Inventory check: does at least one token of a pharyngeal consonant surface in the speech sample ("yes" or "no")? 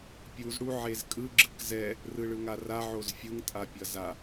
yes